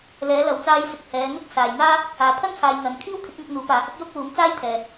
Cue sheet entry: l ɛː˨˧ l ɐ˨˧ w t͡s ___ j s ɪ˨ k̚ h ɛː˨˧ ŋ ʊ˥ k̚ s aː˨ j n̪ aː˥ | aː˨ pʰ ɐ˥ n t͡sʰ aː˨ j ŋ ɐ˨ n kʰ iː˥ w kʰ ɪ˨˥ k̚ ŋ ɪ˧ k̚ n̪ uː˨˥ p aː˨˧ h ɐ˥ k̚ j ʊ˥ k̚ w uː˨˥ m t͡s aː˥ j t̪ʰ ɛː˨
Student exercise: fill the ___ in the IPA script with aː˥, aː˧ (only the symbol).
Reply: aː˧